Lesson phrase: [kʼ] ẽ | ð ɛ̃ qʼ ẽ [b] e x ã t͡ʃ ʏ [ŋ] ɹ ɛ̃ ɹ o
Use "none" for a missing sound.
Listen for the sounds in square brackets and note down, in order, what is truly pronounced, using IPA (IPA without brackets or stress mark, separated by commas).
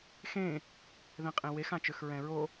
x, w, x